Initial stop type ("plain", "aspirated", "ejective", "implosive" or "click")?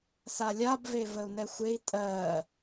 plain